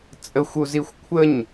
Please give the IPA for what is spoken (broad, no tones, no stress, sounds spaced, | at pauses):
t͡sʼ ə xʷ u z i xʷ kʷʰ ə ɲ